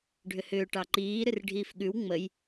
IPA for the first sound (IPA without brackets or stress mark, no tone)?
ɖʱ